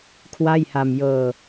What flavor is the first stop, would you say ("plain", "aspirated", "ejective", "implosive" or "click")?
aspirated